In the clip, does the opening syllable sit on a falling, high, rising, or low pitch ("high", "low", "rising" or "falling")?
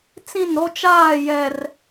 falling